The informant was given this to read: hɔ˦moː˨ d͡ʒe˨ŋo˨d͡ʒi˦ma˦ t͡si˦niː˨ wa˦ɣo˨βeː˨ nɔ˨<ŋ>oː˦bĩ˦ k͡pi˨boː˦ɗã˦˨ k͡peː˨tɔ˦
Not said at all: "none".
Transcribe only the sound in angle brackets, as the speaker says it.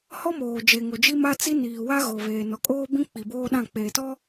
kʼ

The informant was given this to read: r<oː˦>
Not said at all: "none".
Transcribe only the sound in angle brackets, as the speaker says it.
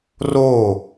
oː˦˨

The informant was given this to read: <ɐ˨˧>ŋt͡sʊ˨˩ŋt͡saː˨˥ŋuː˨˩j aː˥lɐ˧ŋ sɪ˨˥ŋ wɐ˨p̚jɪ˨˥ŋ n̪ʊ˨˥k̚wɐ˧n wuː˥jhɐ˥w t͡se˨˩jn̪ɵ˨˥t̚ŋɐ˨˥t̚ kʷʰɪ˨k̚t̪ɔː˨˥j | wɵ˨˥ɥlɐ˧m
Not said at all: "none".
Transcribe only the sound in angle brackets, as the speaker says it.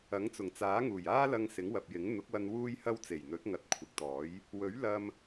ɐ˨˥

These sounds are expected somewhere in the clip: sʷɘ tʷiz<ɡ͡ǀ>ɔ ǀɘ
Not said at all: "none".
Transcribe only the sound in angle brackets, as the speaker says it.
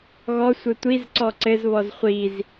ǀ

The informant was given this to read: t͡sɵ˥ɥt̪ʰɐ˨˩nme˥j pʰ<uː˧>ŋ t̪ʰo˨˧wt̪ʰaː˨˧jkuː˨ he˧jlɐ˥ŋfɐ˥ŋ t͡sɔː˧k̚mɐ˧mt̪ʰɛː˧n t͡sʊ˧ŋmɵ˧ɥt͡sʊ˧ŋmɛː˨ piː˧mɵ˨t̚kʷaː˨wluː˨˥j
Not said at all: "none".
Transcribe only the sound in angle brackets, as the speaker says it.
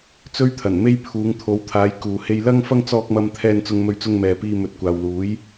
uː˨˧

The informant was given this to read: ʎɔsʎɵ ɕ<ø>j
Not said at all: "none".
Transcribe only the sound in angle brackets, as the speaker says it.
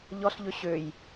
ø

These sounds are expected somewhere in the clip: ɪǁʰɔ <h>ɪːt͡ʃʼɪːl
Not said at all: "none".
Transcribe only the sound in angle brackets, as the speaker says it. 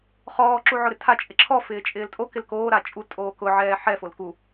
f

